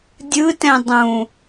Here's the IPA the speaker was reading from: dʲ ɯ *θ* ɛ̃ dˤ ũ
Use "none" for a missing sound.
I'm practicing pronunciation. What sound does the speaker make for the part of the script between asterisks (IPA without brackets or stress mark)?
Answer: t